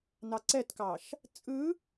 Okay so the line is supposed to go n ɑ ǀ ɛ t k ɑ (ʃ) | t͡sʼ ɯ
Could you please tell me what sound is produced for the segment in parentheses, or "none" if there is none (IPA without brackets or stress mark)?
ʃ